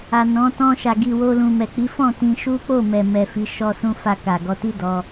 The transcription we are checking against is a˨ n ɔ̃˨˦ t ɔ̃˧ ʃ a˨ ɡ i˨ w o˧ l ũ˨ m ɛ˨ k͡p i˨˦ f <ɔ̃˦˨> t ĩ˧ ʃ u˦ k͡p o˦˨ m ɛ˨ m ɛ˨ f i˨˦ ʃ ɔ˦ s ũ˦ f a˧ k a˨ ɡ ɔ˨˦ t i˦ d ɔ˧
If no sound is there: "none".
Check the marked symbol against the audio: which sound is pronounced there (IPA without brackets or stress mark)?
ɔ̃˦˨